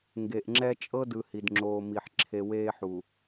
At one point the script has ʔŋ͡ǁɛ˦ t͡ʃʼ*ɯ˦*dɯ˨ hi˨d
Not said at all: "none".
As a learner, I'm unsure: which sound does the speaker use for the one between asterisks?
ɤ˦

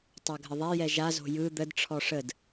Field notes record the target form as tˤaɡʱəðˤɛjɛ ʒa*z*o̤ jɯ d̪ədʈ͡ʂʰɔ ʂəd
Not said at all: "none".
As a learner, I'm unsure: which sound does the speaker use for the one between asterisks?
z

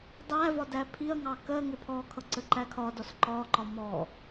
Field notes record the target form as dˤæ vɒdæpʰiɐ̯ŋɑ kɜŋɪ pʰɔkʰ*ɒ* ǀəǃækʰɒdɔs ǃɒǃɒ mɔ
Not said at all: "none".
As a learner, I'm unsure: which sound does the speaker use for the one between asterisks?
ʌ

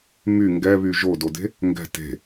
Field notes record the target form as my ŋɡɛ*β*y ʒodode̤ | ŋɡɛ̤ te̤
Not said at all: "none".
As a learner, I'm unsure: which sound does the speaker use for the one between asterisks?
β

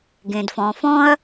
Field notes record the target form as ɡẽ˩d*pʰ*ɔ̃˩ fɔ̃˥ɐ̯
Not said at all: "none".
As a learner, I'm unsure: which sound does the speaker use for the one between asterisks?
f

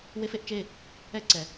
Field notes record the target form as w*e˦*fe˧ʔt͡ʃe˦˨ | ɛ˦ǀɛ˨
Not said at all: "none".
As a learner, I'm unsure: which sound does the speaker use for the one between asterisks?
e˦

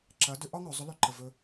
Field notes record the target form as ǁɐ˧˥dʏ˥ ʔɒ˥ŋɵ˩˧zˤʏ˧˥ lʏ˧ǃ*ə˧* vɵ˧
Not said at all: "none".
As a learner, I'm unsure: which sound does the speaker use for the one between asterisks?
ə˧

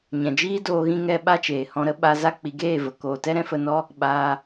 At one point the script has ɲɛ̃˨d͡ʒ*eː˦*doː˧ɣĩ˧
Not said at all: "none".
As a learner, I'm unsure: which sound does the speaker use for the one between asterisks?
iː˦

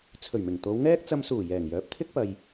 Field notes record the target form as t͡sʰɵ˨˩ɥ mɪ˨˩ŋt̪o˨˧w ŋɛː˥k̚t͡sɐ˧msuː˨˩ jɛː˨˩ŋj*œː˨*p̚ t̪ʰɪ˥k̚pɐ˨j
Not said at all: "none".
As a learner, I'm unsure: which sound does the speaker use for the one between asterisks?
œː˨˥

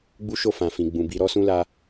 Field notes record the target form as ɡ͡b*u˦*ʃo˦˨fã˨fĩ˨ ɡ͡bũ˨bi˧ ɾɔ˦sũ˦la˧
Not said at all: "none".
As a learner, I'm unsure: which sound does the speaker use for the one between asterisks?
u˦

